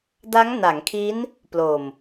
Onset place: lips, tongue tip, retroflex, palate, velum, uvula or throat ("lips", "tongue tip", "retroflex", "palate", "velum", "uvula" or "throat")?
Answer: tongue tip